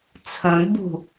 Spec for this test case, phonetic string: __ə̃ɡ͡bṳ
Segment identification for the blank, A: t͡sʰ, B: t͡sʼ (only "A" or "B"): A